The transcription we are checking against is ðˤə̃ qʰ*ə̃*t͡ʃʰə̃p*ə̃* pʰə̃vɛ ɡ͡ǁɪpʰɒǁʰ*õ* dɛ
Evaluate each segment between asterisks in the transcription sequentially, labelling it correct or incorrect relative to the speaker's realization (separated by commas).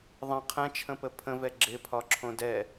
incorrect, incorrect, correct